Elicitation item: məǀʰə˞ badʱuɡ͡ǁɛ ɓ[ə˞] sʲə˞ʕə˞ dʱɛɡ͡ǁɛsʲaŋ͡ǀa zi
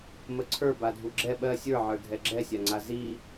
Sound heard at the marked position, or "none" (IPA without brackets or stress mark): ɜ